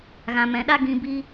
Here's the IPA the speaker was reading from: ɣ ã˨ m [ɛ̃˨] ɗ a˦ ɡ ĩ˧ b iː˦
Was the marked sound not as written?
no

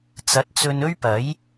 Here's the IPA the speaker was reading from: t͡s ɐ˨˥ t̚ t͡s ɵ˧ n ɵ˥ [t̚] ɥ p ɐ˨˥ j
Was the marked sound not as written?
yes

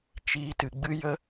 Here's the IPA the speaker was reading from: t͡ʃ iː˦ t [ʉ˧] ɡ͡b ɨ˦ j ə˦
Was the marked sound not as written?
yes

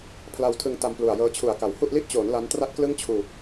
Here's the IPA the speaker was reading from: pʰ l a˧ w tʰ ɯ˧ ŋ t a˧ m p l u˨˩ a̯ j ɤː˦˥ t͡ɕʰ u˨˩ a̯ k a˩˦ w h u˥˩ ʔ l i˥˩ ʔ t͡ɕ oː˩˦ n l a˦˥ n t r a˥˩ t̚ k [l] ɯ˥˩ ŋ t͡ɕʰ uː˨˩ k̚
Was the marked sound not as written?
no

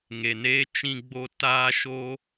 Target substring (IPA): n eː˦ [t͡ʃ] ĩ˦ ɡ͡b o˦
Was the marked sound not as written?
no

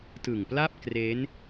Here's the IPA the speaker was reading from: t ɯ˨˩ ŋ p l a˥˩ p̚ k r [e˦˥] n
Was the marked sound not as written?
no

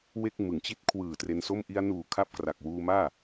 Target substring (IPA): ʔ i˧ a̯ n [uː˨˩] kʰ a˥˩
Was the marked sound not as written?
no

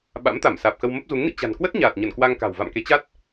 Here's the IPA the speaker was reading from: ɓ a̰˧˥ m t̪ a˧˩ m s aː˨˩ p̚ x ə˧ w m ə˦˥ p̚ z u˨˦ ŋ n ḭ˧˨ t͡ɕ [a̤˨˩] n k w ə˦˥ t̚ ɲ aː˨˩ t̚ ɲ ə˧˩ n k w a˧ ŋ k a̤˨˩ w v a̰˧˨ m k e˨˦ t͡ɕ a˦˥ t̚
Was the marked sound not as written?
no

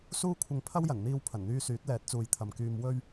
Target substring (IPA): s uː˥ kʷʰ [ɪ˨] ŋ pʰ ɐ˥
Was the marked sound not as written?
yes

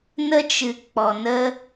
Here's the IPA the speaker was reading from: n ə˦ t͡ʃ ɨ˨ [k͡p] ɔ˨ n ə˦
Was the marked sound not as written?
no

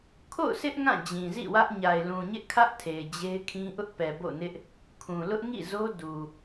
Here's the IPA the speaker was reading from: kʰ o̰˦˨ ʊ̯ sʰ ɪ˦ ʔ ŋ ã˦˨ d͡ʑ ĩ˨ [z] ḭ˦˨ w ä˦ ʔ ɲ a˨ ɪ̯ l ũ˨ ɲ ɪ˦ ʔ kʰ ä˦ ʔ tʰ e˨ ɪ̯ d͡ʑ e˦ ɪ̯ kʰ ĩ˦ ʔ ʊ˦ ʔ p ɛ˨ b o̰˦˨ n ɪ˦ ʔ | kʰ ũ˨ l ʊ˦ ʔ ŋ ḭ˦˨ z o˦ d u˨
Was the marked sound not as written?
no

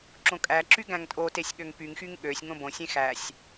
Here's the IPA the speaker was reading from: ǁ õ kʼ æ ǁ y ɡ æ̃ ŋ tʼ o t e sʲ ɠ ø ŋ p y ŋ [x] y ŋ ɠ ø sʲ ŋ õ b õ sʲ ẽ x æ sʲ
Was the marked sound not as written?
no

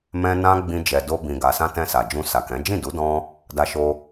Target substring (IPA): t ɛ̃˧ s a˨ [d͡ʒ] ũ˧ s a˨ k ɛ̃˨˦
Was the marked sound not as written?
no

